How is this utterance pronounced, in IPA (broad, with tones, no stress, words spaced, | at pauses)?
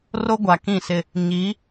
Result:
ro˦ɡʷa˨kĩ˦˨sɪ˦ | ɲi˨˦